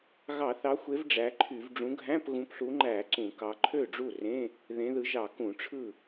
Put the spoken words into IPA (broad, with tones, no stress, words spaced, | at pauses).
ɣɑ˧˩˧θɑ˨˦xʷe˨˦v ɖ͡ʐæ˨˦ǃʰy˧˩˧v ɖ͡ʐũ˨˦ɡʱæ̃˧˥˧pɣũ˨˦pɬu˨˦ ŋ͡ǃæ˧˩˧ ǀũ˧˩˧kɑ˨˦ ǃʰø˥˩ɖ͡ʐu˥˩rẽ˧˥˧ | ðẽ˨˦ðɯ˨˦ʒɑ˧˩˧ kũ˧˩˧ʈ͡ʂʰɯ˥˩